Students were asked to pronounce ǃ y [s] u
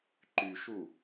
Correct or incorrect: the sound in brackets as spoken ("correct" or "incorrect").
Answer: incorrect